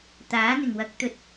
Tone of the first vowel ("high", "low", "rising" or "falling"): rising